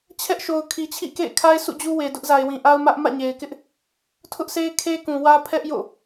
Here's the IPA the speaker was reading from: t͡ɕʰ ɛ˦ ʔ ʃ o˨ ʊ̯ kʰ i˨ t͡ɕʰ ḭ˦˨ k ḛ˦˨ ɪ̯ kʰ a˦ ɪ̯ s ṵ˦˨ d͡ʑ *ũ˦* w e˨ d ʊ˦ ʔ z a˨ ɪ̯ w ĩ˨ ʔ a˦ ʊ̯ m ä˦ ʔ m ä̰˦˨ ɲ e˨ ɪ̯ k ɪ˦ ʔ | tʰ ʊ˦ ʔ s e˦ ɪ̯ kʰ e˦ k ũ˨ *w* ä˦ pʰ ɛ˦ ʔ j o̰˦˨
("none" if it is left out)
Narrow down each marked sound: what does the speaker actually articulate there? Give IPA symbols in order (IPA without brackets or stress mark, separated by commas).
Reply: u˦, w